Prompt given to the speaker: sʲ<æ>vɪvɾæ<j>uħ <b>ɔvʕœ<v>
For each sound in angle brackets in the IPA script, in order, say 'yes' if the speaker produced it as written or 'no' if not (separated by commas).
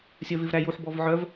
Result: no, yes, yes, yes